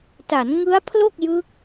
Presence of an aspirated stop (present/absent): present